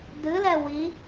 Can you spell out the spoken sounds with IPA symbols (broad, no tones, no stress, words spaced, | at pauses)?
dɨlɛ wi